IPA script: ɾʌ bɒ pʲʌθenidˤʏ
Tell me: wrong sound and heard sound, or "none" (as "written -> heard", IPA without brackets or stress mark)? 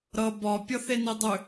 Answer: none